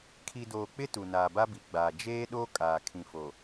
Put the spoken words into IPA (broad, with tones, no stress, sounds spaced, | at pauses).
kʰ i˨ d oː˨ k͡p ɪ˦ t u˨ n aː˨ b a˦ b i˨ ɡ͡b aː˨ d͡ʒ eː˦ ɗ o˦ kʼ aː˨ kʰ ĩ˨ f o˨